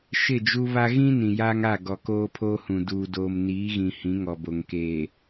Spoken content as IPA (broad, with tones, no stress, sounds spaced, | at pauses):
ʃ ɪ˦˨ d͡ʒ u˦ β a˦ ɣ ĩ˦ n ĩ˨ j aː˦ ŋ a˦˨ ɡ ɔ˨ k oː˦ pʰ oː˦ h ũ˨ d uː˨ d oː˨ m n iː˨˦ ɣ ĩ˨ h ĩ˨˦ ŋ ɔ˨ b o˨ ŋ k eː˨